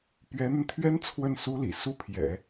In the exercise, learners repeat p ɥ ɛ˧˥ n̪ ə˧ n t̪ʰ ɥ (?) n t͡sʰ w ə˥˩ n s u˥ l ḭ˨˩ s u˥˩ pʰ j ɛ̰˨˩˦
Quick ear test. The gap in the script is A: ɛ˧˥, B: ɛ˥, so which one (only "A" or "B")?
B